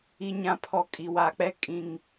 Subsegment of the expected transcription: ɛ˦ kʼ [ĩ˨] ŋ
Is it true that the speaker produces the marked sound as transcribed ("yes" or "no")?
yes